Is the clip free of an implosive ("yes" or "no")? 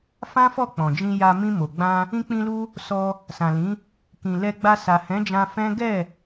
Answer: yes